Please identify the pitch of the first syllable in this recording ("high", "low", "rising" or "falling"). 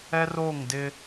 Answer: high